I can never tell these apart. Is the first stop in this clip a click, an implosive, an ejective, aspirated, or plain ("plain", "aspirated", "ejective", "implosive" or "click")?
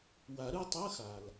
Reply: plain